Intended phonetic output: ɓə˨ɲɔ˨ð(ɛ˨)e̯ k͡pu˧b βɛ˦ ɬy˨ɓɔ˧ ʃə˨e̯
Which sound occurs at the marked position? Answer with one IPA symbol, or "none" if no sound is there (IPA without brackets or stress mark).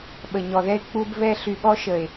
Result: ɛ˧